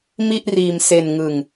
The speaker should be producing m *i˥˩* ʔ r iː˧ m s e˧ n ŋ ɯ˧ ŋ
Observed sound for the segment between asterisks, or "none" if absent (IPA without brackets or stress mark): i˥˩